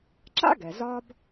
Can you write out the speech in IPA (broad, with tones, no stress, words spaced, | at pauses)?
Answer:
ǁa̰˥ɡɛ˩ zɒ˦b